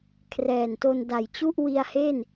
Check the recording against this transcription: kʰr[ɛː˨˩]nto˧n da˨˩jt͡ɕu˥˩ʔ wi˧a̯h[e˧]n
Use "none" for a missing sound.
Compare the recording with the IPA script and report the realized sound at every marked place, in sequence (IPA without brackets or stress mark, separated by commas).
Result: ɛː˨˩, e˥˩